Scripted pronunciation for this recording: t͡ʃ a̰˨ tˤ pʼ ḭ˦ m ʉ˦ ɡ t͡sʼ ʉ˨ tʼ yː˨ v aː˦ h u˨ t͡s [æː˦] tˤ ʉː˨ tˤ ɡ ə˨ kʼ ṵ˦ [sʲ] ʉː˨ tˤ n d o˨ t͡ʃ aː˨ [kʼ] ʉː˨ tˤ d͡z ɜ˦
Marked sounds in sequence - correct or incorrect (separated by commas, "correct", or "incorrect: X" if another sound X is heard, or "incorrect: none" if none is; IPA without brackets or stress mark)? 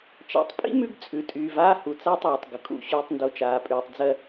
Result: incorrect: aː˦, incorrect: ɕ, incorrect: pʼ